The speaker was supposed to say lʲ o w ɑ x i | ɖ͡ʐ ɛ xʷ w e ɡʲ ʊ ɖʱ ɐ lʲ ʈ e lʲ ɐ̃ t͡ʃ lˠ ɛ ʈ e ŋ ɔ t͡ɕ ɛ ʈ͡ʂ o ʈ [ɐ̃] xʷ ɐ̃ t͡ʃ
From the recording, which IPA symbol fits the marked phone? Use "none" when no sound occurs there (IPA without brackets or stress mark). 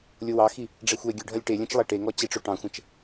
ɑ̃